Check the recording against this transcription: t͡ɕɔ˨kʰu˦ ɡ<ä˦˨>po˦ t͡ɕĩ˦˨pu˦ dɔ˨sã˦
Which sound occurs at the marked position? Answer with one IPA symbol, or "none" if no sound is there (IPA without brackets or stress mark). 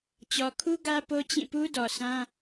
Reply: ä˦